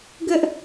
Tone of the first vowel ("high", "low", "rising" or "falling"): high